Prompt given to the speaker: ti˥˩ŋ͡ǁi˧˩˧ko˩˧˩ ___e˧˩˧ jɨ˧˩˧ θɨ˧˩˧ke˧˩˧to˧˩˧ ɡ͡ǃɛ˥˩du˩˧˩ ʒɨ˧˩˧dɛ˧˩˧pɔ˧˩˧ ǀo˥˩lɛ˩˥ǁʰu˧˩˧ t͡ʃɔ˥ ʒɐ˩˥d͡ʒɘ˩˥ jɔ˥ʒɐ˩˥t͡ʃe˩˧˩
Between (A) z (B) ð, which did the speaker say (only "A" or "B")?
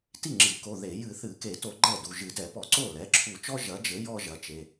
B